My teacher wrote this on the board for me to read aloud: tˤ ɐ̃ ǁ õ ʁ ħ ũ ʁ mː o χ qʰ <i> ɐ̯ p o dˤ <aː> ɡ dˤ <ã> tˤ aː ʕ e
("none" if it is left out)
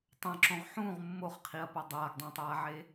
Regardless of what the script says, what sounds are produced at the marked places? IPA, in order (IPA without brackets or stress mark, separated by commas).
i, aː, ã